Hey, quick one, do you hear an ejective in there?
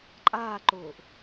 yes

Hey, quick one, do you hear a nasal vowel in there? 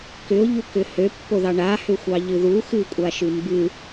no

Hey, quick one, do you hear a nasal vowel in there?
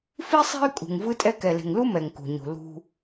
no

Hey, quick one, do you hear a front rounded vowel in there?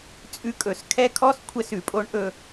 no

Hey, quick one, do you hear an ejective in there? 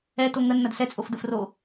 yes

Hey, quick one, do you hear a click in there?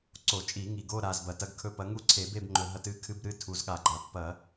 yes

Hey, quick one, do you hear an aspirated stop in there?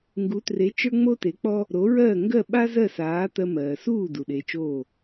no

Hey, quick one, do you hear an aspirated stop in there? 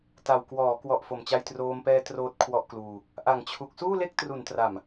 yes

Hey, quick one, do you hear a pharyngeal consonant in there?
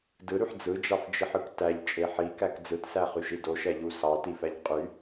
yes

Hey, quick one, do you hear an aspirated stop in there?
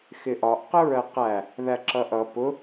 no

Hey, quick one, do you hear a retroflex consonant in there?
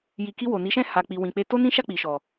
no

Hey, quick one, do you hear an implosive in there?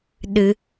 yes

